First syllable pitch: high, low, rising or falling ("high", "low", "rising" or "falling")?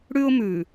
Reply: high